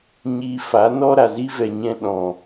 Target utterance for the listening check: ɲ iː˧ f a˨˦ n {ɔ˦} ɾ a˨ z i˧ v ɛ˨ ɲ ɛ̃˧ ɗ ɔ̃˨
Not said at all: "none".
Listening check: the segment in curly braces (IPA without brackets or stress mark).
ɔ˦